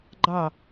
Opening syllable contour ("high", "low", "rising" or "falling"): falling